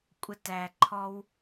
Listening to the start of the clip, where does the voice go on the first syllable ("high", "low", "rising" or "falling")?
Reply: high